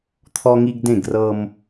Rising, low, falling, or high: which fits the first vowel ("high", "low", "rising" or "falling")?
high